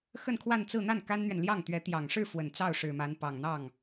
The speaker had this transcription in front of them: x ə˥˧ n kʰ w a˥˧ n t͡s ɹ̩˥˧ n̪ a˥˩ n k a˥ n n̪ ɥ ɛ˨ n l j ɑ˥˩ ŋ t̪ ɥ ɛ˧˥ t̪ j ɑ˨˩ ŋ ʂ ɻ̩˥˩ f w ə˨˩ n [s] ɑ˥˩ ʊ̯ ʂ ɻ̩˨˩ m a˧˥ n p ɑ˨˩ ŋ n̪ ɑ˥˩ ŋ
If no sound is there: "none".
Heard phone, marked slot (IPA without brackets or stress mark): t͡s